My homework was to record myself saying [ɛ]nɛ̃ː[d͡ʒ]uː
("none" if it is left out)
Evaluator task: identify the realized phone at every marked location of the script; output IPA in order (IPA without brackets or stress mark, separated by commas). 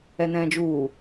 ɛ, d͡ʒ